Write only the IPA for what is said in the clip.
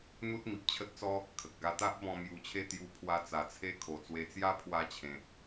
n̪ u˦ t̚ m i˨ p̚ t͡ɕʰ ə˦ t̚ t͡s ɔ˦ | kʰ ə˨ k̚ ɡ a˧ t̪ a˦ ʔ b ɔ̃˧ m j u˧ t͡ɕʰ e˥˧ t̪ j u˧ pʰ w a˧ t͡s a˨˩ t͡sʰ e˧ kʰ o˨˩ t͡s w e˧ t͡s j a˦ pʰ w a˧ t͡ɕʰ ẽ˨ t̚

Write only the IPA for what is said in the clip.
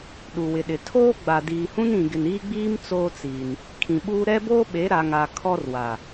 ɗ u˨ w ɪ˨ ɗ ɪ˨ tʰ oː˦ ɡ͡b a˨ d iː˨ h ũ˦ n ĩ˨ ɡ ɪ˨ n iː˦ ɡ͡b iː˦ m t͡s oː˦ t͡s iː˨ n | kʰ ĩ˨ ɓ uː˦ ɾ ɛ˦ b oː˦ ɓ e˨˦ ɾ a˨ ŋ a˨ kʰ ɔ˦ r w a˨

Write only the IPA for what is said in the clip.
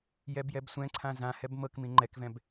j ɛ b j ɛ b sʷ ɛ̃ ǀʰ ã z ã h ɛ b m ɤ k m ĩ ŋ͡ǃ ɛ k v ɛ̃ b

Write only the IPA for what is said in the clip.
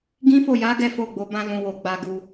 ɡ ĩ˦ f o˦˨ j a˨˦ ɡ ɛ˦ f o˦˨ ɡ͡b o˨˦ b ã˦ l ũ˧ w o˧ ɡ͡b a˧ ɡ u˨

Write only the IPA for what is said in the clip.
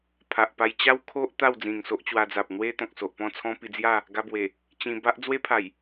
pʰ a˨ ʔ p a˧ j t͡ɕ a˦ w kʰ o˦ ʔ t̪ a˥˧ w d͡z ĩ˨˩ ŋ s o˦ ʔ t͡ɕ w a˧ d͡z a˨ p̚ n̪ w e˦ t̪ ɔ̃˨ k̚ s o˨ ʔ p ɔ̃˥˧ t͡sʰ ɔ̃˦ p i˧ d͡z j a˥˧ | ɡ a˧ b w e˨˩ | t͡ɕ ĩ˧ b a˦ ʔ d͡z w e˦ pʰ a˨˩ j

